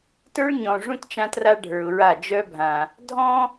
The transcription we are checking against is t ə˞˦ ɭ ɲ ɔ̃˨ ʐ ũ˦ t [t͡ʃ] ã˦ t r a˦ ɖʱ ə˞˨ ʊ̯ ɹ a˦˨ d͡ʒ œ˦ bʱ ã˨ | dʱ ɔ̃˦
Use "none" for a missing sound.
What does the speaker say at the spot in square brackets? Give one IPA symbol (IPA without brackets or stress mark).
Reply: t͡ʃ